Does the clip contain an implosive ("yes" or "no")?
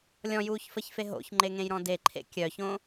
no